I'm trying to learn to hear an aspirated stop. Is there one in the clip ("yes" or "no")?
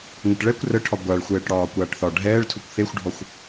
yes